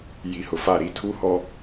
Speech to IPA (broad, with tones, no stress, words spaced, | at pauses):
ji˨hʊ˨fa˦˨ ɾi˦tʰu˦hɔ˦